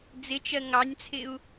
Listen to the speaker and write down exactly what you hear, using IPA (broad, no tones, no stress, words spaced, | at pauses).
d͡zɪt͡ʃɜ ŋɑnʲt͡sʰɪu̯